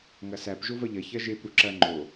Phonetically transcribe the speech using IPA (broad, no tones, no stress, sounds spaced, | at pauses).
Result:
ŋ ɐ s æ p ʒ o v ɐ ʎ ɐ ç ɐ ʒ e p ɾ u ǁ ɐ ŋ͡ǃ o